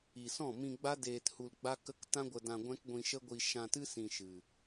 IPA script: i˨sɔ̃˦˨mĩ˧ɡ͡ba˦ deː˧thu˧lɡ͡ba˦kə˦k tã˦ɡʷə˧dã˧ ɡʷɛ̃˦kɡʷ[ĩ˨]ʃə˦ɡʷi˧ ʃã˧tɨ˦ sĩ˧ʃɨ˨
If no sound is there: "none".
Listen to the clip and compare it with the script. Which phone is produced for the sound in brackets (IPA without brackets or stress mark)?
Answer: ĩ˧